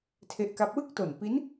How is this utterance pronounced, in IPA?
tʰ e˦˥ ʔ k a˦˥ p̚ w ɯ˥˩ k̚ t o˨˩ n p i˦˥ n

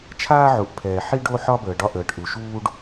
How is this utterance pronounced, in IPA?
t͡ʃʰ aː˦ ʕ u˨ ʔ pʰ ɛː˨ ħ i˦ ɖ o˦ ħ ɒ˦ b əː˨ ɖ ɒ˦ ʔ əː˨ ʈ ʔ u˨ ʃ uː˦ ɖ

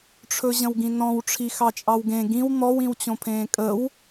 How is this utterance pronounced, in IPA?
ʈ͡ʂʰ ɵ ʑ ə̃ w ɡ ĩ n ɔ̃ w ʈ͡ʂʰ i x ɑ t͡ʃʼ ɑ w ɡ ẽ ɡ ĩ w n̪ ɔ w ĩ w t͡ɕ õ pʰ ẽː kʼ ə w

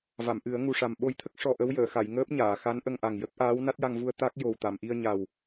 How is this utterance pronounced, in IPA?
v a˨˩˨ m ʔ ɨ˨˩˦ ə̯ ŋ u˨˩ ʂ a˨˩ m ɓ o˧ j t̪ʰ ə˦˥ k̚ ʂ ɔ˧ ʔ ə˧˥ w j əː˨˩˨ x a˨˩˨ j ŋ əː˦˥ p̚ ɲ aː˨˩˨ x a˧˥ n ʔ ə˧ ŋ ʔ a˨˩ ŋ j ə˦˥ k̚ ʔ aː˧˥ w n a˦˥ t̚ j a˧ ŋ v u˧ ə̯ t̪ a˦˥ k̚ j o˨˩ w t̪ a˨˩˨ m ʔ i˧ ə̯ ɲ a˨˩ w

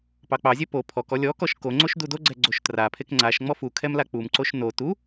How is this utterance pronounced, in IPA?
p ɑ k͡p ɑ zʲ ɛ p o pʰ ɔ k ɔ lʲ ɔ k ɔ ʃ k o ŋ͡ǀ o ʃ d u d o ɡ͡ǀ ɛ ɡ͡ǀ o ʃ t r a pʰ e k ŋ͡ǀ a ʃ ŋ͡m ɔ f u kʰ ɛ m l a k͡p u m ǀ o ʃ n o t u

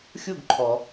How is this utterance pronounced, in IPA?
xʲ u˥˧ ɡ ǃʰ ɔ˩

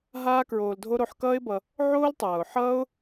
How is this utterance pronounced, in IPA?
ɦ aː˦ k ɹ oː˧ l dʱ o˦ ɾ o˧ ħ k ʌː˦ ɪ̯ b ʌ˧ | ʕ oː˦ l tˤ ʌː˨ ʊ̯ ħ ʌː˦ ʊ̯

